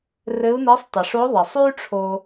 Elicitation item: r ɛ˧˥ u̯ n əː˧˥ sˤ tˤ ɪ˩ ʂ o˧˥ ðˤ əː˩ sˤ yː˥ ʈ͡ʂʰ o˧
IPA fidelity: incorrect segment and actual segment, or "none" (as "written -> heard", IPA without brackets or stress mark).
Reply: ɛ˧˥ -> ɘ˧˥